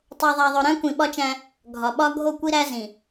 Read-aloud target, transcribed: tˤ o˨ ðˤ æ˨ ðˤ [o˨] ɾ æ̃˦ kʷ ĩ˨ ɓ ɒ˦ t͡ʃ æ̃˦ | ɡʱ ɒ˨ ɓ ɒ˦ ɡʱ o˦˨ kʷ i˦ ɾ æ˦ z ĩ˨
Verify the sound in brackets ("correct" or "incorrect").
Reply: correct